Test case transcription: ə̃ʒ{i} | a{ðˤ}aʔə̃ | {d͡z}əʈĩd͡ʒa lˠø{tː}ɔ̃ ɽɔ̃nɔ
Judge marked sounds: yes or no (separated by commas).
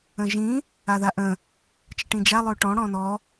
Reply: no, no, no, no